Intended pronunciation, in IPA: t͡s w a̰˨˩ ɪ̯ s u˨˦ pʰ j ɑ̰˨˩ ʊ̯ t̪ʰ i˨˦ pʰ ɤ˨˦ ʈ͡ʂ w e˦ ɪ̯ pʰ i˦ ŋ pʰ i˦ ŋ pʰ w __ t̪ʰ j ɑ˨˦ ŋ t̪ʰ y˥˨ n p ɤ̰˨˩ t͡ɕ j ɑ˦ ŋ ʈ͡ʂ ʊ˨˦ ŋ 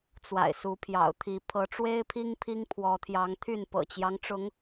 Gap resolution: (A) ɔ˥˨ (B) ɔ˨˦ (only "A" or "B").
B